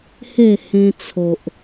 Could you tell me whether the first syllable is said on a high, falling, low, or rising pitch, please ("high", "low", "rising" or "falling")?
falling